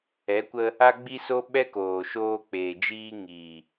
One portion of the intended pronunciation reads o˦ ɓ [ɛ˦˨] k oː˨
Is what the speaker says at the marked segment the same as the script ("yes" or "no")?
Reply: no